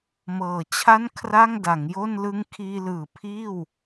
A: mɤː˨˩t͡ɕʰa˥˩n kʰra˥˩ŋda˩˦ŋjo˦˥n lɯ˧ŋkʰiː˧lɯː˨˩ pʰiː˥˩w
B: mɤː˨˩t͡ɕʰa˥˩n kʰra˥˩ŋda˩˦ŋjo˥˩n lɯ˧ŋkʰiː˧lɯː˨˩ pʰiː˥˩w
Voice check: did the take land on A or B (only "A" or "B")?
B